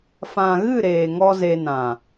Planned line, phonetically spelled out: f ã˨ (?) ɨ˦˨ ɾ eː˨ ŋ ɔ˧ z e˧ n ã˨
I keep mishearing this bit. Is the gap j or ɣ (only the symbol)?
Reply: ɣ